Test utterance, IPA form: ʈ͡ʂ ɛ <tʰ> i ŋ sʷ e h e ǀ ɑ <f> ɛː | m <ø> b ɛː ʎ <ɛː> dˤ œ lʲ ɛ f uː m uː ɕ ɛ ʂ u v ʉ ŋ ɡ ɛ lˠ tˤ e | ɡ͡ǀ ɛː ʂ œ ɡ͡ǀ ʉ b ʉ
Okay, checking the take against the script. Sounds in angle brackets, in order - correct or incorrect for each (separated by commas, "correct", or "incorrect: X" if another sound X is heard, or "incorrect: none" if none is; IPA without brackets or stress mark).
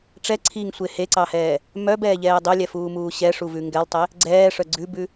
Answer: incorrect: ǀʰ, incorrect: h, incorrect: œ, correct